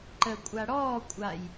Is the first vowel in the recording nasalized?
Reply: no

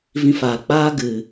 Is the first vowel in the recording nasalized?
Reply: yes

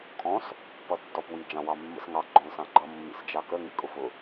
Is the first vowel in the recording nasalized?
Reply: yes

